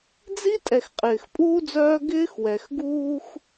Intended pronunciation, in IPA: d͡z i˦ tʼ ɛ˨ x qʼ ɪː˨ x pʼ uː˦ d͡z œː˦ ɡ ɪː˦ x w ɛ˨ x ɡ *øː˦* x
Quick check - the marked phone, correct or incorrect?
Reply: incorrect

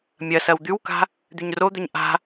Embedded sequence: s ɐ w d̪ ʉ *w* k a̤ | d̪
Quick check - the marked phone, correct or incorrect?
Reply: correct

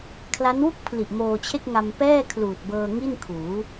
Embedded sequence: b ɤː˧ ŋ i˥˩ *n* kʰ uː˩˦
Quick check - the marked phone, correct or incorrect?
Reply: correct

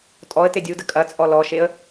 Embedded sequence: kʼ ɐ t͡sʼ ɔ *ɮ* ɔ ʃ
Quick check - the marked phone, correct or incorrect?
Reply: incorrect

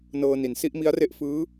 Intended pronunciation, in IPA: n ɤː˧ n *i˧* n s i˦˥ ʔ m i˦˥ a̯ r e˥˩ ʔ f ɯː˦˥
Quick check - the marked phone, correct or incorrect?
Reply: incorrect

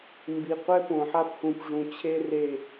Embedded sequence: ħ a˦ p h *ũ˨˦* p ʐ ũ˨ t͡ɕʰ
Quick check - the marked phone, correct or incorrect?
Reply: incorrect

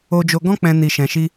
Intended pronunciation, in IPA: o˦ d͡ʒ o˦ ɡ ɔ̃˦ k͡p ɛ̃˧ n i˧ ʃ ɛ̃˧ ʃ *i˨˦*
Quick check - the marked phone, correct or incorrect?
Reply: incorrect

